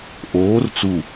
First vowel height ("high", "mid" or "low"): mid